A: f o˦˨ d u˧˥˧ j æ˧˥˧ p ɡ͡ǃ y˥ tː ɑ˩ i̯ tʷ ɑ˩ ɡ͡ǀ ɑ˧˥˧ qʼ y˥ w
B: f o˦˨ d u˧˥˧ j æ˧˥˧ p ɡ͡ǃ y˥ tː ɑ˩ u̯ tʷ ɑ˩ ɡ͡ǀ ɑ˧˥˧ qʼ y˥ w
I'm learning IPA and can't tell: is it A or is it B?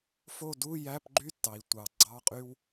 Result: A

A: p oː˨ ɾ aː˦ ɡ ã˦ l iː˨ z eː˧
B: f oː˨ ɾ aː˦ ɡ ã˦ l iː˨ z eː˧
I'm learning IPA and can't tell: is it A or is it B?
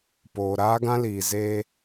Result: A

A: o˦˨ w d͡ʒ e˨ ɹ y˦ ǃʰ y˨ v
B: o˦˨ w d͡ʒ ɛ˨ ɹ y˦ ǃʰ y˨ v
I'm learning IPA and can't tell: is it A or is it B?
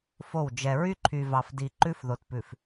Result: B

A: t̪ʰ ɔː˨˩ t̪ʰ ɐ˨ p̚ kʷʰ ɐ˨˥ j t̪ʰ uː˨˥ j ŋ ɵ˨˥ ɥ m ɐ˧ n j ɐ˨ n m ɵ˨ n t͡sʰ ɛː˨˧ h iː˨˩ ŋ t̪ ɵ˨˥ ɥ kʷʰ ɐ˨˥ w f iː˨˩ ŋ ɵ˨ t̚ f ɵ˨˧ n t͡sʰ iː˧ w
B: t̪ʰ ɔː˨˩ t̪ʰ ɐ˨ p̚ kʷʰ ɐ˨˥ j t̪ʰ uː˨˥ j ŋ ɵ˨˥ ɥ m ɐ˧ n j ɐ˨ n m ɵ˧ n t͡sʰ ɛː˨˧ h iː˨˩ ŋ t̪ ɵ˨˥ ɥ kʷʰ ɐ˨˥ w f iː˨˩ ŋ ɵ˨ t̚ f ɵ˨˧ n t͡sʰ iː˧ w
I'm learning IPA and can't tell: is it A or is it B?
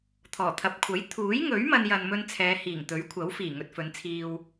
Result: B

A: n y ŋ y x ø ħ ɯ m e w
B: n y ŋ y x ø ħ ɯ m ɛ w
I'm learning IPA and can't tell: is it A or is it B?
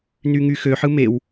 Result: A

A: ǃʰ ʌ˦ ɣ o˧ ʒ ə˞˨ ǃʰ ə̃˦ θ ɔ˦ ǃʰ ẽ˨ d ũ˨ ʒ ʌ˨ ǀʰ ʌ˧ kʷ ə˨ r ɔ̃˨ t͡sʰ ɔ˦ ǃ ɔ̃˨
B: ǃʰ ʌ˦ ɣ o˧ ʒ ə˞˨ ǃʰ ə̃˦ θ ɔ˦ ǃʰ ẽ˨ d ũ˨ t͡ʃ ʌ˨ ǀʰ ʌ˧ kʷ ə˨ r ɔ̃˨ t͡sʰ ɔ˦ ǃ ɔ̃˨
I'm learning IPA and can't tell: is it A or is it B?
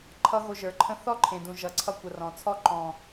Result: A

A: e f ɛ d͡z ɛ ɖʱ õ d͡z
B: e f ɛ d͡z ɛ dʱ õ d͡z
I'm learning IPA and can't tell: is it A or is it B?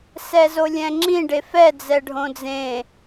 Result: A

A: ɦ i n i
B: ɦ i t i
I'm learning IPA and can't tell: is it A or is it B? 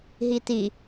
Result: B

